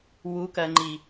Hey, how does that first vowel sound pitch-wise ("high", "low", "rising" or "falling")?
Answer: rising